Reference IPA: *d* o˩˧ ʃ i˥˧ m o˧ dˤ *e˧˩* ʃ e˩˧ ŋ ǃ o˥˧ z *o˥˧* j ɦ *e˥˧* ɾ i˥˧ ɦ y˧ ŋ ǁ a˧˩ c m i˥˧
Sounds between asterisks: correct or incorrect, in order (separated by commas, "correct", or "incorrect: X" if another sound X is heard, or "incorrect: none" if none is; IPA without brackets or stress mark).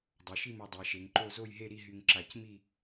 incorrect: dˤ, incorrect: e˩˧, correct, correct